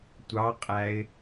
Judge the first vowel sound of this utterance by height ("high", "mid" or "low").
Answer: low